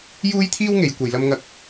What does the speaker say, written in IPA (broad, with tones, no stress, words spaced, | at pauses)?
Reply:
juː˥jt̪ʰiː˥wŋe˨˧j kʷɐ˨jlɐ˧mŋɐ˧k̚